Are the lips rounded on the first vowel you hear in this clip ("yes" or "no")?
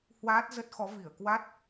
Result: no